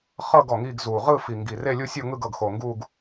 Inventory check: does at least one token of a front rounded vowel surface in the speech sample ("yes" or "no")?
no